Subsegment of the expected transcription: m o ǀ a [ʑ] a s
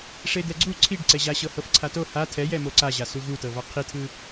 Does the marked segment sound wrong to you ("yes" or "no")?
no